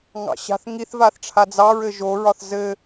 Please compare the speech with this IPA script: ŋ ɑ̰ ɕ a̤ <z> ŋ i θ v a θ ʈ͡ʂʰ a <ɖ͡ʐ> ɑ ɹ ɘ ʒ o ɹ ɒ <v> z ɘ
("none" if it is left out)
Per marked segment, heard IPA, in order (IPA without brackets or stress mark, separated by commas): θ, d͡z, θ